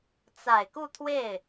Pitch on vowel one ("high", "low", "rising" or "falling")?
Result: low